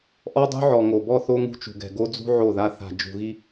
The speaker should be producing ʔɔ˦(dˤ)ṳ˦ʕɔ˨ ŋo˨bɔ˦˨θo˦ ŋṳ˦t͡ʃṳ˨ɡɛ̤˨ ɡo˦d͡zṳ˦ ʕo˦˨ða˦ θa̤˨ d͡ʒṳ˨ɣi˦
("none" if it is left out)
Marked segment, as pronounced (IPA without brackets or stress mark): dˤ